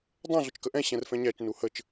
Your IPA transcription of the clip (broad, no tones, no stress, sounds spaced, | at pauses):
dˤ ɛ̃ ɮ ʊ t͡ʃ k ə ʔ ɛ̃ ɕ ɛ̃ r f ɛ̃ ɲ æ t͡ʃ n u h ə t͡ʃ